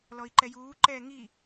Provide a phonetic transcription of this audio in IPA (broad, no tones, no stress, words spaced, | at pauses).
lɔi̯ǃɛjuː ǃɛːŋi